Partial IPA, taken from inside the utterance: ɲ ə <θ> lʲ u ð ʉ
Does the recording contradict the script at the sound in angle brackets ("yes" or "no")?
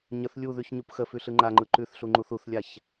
no